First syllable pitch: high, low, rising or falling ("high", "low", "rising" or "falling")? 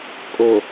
low